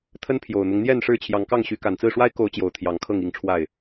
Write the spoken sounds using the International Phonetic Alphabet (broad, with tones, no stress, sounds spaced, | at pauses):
t̪ʰ ə˦ n pʰ j o˨˩ ʊ̯ n̪ ʊ˦ ŋ n̪ j ɛ˥˨ n ʂ ɻ̩˥˨ t͡ɕʰ j ɑ˨˦ ŋ k ɑ˥˨ ŋ ɕ y˨˦ k a˨˩ n t͡s ɹ̩˥˨ ʂ w a˦ ɪ̯ k o˨˦ ʊ̯ t͡ɕ j o˨˩ ʊ̯ t̪ʰ j ɑ˨˦ ŋ kʰ ɤ˥˨ ŋ i˥˨ ŋ ʈ͡ʂʰ w a˥˨ ɪ̯